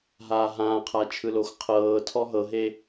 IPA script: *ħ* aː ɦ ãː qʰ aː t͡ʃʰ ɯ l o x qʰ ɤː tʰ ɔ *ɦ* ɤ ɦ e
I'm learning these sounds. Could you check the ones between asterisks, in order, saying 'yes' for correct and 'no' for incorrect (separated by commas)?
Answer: no, yes